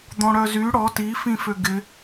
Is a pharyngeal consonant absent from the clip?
yes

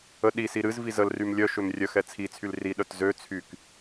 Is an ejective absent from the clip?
yes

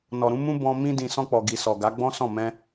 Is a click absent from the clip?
yes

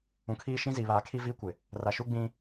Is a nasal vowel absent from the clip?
no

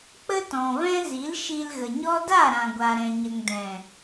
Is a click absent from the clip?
yes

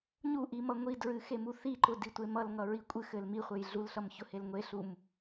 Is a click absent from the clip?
no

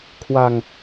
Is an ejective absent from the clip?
yes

